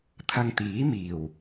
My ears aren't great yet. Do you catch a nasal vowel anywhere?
no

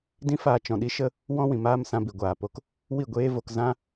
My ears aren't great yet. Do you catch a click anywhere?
no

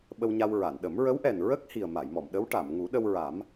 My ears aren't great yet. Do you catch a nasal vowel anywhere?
no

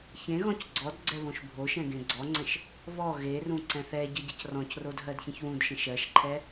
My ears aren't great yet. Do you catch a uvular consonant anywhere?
no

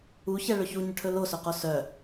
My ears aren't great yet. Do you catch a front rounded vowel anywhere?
yes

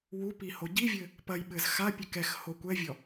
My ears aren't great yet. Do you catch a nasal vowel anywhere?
no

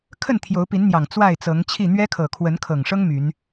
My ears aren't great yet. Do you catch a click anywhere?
no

